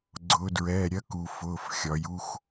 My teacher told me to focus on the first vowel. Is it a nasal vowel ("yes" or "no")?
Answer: no